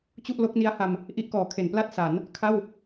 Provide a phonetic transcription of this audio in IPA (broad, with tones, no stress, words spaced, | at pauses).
t͡ɕu˥˩ʔlo˦˥k̚ni˦˥a̯ha˧m | ʔi˦˥ʔkɔː˩˦kʰe˩˦npla˥˩t̚ sa˩˦n | kʰa˥˩w